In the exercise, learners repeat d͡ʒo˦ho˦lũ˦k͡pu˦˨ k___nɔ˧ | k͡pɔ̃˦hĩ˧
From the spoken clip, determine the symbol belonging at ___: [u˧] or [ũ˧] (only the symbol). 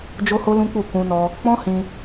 ũ˧